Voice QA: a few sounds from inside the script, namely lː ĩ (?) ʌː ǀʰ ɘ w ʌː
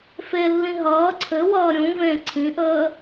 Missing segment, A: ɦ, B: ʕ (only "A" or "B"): A